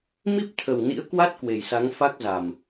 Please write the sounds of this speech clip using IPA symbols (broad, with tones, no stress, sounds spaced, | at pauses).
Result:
m i˦˥ p̚ t̪ʰ ə˨˩ w n ḭ˧˥ ə̯ k w a˦˥ t̚ k w e˨˩ j s a˨˦ ŋ f a˦˥ k̚ z a˨˩ m